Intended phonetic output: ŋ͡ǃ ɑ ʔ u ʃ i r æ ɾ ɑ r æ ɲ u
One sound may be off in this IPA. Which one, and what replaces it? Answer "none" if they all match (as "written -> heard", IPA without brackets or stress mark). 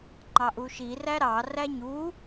none